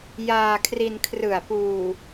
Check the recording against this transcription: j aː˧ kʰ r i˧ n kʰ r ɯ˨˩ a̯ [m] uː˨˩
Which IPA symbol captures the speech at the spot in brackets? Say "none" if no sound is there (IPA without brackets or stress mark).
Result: p